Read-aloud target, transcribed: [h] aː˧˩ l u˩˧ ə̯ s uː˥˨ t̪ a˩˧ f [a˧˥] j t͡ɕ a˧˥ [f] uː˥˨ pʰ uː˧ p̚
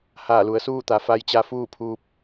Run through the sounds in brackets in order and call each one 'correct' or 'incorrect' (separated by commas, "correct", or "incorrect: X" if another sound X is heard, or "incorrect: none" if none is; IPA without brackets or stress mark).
correct, correct, correct